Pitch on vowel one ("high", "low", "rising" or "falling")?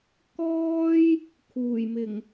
high